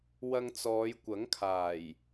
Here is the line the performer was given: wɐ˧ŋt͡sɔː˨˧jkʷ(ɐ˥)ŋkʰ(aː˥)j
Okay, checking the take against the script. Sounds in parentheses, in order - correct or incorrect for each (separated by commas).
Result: incorrect, incorrect